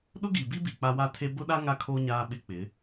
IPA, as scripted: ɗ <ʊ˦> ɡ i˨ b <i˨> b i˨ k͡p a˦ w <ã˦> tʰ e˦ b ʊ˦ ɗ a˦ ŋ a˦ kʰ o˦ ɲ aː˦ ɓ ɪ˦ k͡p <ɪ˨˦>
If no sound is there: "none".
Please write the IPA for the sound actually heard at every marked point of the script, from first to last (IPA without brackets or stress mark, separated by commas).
ʊ˦, i˦, a˦, ɪ˨˦